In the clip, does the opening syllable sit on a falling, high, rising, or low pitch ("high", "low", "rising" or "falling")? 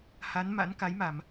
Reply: rising